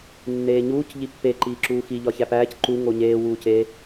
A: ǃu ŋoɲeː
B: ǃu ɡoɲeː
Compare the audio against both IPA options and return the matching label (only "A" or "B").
A